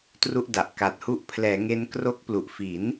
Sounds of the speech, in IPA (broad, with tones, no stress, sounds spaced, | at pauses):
t r u˥˩ ʔ d a˨˩ ʔ k a˨˩ t̚ h u˦˥ ʔ pʰ l ɛː˩˦ ŋ e˦˥ n k r o˦˥ k̚ p l u˨˩ ʔ f i˩˦ n